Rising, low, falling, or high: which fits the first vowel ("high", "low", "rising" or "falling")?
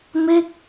falling